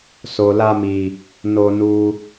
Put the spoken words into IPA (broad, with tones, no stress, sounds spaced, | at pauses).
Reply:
s o˨ l a˧ m i˨ | n o˧ n u˧